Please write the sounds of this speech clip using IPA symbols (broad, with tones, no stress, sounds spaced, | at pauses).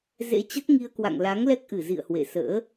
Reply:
z ḛ˧˥ t͡ɕ ə˦˥ t̚ ŋ i˧ ə̯ k w a̰˧˨ ŋ l a˨˦ ŋ l ɛ˦˥ k̚ ʔ ɨ˧˩ z ḭ˧˨ ə̯ h w ḛ˧˨ s ə̰ː˧˥